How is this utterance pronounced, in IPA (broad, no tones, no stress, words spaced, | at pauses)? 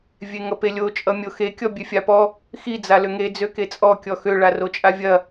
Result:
vʲeŋʌpelʲo t͡ʃʼʌmʲoxe kʲɔbʲøfʲapɔ | xi d͡zaløŋe d͡zøket͡sʼɔ kʲɔxø ɭarot͡ʃʼavʲɐ